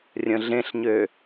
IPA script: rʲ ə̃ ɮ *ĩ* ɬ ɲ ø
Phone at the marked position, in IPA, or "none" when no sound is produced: ẽ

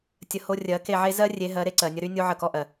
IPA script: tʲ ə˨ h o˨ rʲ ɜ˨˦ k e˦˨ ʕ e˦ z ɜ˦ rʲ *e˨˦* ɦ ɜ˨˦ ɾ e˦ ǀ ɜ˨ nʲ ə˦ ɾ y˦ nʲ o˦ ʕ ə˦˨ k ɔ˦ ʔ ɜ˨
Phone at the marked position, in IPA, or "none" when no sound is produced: e˨˦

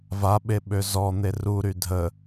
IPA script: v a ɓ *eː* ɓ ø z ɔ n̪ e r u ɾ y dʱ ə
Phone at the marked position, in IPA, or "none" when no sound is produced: e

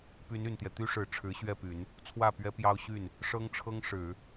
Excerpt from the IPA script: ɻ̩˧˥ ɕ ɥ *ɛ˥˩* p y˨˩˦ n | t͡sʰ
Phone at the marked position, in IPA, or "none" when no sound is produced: ɛ˥˩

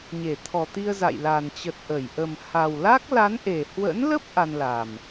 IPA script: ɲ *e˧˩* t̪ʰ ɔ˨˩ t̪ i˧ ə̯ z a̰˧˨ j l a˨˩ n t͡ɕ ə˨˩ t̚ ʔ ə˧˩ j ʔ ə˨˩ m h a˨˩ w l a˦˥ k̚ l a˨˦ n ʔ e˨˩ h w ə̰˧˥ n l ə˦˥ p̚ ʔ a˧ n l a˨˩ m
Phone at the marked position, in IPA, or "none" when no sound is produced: e˧˩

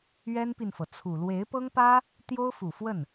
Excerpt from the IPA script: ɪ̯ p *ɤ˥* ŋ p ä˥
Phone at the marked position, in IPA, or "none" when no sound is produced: ɤ˥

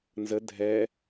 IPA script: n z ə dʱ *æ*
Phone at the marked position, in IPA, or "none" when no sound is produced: ɛ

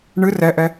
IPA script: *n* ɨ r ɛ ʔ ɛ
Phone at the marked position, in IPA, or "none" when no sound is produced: ɳ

